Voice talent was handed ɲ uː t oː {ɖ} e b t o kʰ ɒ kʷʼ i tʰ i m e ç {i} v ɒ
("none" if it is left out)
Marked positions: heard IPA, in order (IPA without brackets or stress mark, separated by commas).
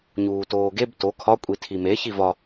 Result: ɡ, i